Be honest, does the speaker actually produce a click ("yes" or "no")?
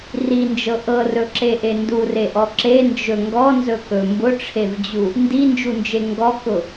yes